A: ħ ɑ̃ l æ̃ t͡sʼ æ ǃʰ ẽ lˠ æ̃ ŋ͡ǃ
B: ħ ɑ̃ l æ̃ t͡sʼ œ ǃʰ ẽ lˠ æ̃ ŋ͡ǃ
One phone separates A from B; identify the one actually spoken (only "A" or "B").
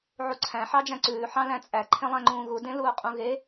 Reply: A